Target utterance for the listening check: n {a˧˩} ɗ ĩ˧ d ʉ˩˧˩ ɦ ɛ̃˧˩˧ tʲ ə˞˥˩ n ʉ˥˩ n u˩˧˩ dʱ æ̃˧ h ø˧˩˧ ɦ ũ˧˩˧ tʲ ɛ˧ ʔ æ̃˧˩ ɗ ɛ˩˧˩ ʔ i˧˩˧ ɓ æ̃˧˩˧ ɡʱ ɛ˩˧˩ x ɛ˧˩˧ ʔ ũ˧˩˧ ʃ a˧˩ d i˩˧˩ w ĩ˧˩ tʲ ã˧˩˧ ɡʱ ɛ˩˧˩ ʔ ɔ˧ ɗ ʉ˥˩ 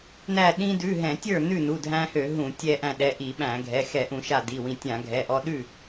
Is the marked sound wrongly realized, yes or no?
yes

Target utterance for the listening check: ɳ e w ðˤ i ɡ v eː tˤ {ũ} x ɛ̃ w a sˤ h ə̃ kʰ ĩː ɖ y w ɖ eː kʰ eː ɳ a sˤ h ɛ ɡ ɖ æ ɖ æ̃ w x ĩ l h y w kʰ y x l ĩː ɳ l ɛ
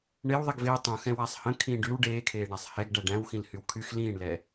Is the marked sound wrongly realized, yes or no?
no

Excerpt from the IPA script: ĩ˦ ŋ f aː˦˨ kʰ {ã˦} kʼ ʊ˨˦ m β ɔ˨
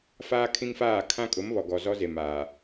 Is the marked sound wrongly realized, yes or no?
no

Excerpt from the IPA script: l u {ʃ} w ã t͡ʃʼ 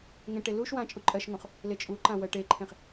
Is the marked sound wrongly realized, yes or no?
no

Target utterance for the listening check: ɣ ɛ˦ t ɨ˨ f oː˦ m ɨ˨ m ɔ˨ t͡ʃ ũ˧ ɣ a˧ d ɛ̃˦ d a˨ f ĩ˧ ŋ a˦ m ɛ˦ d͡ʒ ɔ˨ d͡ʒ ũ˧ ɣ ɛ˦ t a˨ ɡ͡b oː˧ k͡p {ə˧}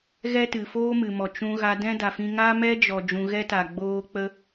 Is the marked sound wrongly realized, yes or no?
no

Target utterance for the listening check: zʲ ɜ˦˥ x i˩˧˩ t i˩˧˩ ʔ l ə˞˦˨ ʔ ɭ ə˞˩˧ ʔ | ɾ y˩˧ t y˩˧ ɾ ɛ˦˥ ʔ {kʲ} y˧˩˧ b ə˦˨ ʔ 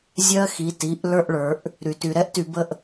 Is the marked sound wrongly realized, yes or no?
yes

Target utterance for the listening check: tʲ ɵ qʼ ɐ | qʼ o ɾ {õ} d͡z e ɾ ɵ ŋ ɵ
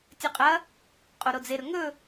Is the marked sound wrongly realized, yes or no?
yes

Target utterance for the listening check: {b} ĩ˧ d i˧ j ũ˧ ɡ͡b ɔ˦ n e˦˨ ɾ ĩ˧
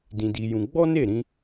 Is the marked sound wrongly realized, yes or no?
yes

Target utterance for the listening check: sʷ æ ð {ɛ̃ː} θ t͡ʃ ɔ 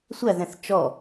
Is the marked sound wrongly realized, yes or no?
yes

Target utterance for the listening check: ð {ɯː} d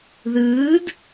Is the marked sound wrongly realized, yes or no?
no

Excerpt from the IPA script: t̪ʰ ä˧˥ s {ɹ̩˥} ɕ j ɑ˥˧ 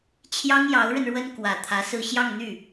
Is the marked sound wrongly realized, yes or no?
yes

